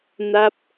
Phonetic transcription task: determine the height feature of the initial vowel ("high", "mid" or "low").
low